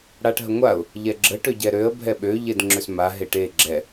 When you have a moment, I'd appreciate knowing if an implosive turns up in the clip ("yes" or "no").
yes